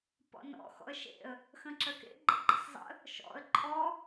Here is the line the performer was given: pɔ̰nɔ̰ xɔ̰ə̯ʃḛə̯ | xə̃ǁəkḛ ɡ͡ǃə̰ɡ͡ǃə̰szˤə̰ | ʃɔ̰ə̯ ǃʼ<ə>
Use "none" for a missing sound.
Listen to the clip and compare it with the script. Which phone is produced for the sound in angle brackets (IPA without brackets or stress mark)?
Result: ɔ